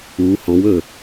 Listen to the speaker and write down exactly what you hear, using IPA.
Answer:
u h ɔ̃ w ɵ

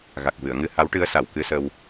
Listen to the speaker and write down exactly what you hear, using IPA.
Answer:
ɣ a˨˩ k̚ v ɨ˨˩˨ ə̯ ŋ ɨ˧ h a˧˥ w ʈ ɨ˧˥ ə̯ s a˨˩˨ w k ɨ˧ s ə˧ w

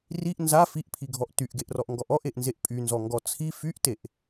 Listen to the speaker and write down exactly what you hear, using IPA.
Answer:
r i ʔ n z a f i ʔ pʰ i ɡʱ ɔ ʔ t y ʔ ɡ e ʔ r ɔ ʔ ŋ ɡ ɔ ʔ ɔ ʔ e ʔ n z e ʔ pʼ y n z ɔ ŋ ɡ ɔ t͡sʰ i f y ʔ t e ʔ

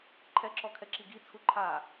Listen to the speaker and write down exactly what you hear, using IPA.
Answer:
ǃʰ ɛ ǁ ɔ kʰ ɛ ǁ i ɡ i t͡sʰ u ǃʰ a

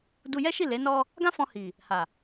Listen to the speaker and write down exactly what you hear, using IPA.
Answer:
d u˧ j ɛ˦ ʃ i˦˨ l e˨˦ n ɔ˧ | ɡ ã˦ f ɔ̃˧ h i˨ | h a˨

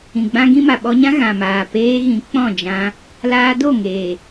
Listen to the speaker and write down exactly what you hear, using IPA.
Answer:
ĩ˨ ɡ͡b ã˦ ɡ ĩ˦ m a˨ ɓ ɔ˧ ɲ ã˦ ɣ ã˨ m aː˨ p eː˧ ɣ ĩ˨˦ k͡p ɔ̃˦˨ d͡ʒ ã˧ | l aː˧ d o˦˨ ŋ eː˨

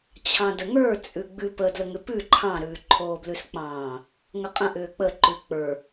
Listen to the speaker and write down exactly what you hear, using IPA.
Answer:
t͡ɕʰ ɑ̃ d ə ŋ ə˞ t͡sʼ ʉ ɡ͡b ʉ p ə d l ə ŋ ʏ p ʉ ǃʰ ɑ̃ ɾ ʉː ǃʰ oː b l ʉ s k͡p ɑ̃ː | ŋ ə qʼ ə̃ ʔ ʏː k͡p ə ǃ ʉ k͡p ə˞

